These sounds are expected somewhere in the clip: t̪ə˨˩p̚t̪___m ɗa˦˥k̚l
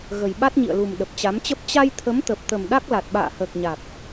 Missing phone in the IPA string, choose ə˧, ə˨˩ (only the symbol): ə˨˩